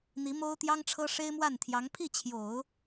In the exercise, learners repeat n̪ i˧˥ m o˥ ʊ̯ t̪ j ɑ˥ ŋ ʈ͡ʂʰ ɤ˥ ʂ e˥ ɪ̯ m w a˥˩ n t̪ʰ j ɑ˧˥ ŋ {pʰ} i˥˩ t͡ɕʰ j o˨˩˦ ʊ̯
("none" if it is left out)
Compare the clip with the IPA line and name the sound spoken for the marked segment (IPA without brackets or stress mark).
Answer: pʰ